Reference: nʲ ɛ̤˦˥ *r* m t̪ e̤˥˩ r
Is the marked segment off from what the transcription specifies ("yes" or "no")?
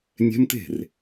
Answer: yes